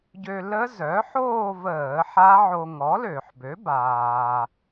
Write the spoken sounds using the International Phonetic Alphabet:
ɟø˧ lə˦˥zœ˩˥ħoː˥˧vəː˧˩˧ ħa˦˥ʕo˧ ŋɔ˩˥lø˧˩˧ħbø˩˥ baː˩

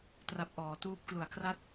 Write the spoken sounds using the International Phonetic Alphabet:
tra˦˥p̚ʔɔː˩˦ tuː˦˥p̚klu˨˩a̯kra˥˩t̚

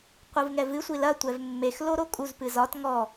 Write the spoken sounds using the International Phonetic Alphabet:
qʷɨvŋɛvɨ sʷilɐ tʷɛvmːex loɾokʼuz pɨzɒt ŋɔ

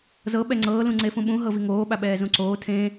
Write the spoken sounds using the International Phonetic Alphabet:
zɤ ɓɛŋ͡ǀɤː lũŋ͡ǀefũɓũ ɦɤviŋoː ɓaɓɛːzũǀoː tʰẽ

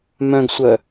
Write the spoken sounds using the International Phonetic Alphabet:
mœ̃ɡsʷœ

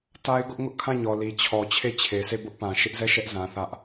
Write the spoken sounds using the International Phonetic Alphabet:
ta˦ɪ̯ɡʊ˦ʔ ŋʊ˦ʔkʰã˦˨ɲɔ˨ li˨t͡ɕʰɔ˨ t͡ɕʰe˦˨t͡ɕʰe˨se˦˨ bʊ˦ʔpã˨ ʃɪ˦ʔzɛ˦˨ ʃɛ˦ʔzã˨ θä˦ʔ

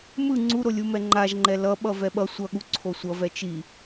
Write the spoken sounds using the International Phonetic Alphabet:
mɯ ŋ͡ǀuɾolʲumɛ ŋ͡ǃaʒŋ͡ǃɛ lʌɓʌvɛ ɓʌ sʷʌɠuǀʰo sʷʌvɛ t͡ʃi

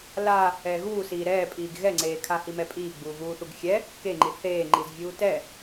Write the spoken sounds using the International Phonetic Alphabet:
la | ɛːɣuːsiː ɾɛːpʼiːɡ ɣɛŋ͡ǀeːkʰa himɛpʼiːɡ͡buː ɣuːθuɡxʲɛ | keŋ͡ǃi θeːŋ͡ǃiz vʲuːtɛ

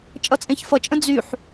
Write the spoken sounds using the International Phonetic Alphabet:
t͡ʃʼʌt͡sʼẽçfʌt͡ʃʼə̃ d͡zyħ

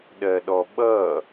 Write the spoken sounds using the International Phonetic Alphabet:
ɗɜɗɔɓʌ

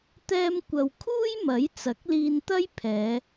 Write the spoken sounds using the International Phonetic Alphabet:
t̪ɛː˧mkʷɐ˨wkʰuː˥j mɐ˨˥jt͡sɐ˨˥k̚liː˧nt̪ɐ˥j pʰɛː˨˧

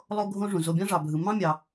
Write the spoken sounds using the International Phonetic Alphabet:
lˠo˦ɡʱõ˦ʐũ˩ zo˨bʲɑ̃˦ʐɑ˩bʱɯ˩ mɑ̃˦mʲɑ˩

